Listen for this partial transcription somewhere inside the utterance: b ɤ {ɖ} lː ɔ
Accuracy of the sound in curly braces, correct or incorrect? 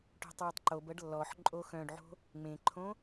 correct